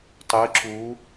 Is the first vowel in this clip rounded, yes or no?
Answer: no